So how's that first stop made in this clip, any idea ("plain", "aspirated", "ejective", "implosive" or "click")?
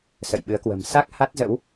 implosive